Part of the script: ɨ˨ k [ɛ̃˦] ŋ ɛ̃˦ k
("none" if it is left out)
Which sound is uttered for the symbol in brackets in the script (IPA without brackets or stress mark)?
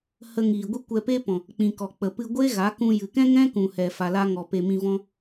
ɛ̃˦